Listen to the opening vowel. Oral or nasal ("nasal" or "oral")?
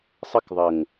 oral